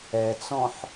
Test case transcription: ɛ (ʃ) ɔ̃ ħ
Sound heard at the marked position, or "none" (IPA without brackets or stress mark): t͡s